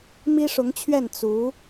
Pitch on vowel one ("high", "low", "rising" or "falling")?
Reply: high